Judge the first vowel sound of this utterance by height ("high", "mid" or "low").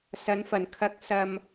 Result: low